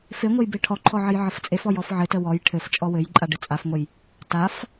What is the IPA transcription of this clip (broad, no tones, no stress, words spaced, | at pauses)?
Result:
feŋʷɘj beʈʰɔǃʰɔ ʕɘjʕəft͡sʼefɔj ɔfʕɘtə wɔj ʈʰɘft͡ʃʼɔ wɘjǃʼa ɖɘt͡sʼafŋʷəj | taf